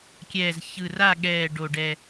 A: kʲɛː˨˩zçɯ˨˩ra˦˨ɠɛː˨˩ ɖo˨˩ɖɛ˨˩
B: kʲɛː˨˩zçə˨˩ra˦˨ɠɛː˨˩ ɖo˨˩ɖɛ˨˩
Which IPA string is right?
A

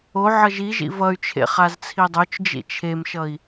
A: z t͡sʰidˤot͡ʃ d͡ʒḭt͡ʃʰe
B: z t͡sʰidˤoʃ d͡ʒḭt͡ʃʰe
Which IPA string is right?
A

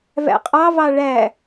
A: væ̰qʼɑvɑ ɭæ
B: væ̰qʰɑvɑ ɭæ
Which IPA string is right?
A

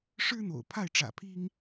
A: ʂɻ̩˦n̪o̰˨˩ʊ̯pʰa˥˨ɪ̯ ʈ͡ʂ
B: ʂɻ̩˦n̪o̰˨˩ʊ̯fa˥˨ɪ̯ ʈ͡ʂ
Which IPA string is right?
A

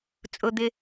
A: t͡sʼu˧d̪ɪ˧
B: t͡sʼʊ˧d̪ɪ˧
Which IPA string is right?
B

